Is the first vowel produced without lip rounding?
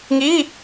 yes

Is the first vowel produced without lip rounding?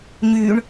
no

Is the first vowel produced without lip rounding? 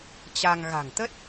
yes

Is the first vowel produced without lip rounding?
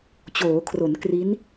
no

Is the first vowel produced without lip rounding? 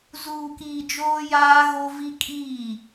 no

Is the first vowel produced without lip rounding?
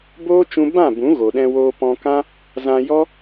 no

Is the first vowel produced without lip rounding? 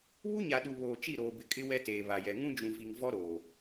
no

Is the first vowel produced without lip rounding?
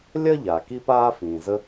yes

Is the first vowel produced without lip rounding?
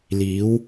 yes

